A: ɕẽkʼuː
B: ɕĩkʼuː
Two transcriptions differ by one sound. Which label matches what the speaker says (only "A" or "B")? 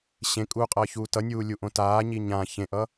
A